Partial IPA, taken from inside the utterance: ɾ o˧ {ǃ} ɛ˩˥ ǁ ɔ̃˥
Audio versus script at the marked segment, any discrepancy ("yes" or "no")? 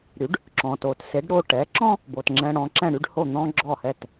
yes